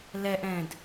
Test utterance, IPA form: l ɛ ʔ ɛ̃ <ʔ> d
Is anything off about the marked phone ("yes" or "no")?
yes